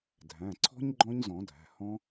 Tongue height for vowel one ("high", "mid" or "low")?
low